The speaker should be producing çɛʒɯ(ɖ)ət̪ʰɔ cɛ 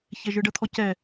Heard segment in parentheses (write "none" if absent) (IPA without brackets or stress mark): ɖ